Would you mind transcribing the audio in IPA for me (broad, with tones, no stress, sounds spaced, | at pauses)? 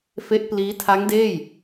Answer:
f e˦˥ ʔ p l iː˦˥ tʰ a˦˥ ŋ d eː˥˩ j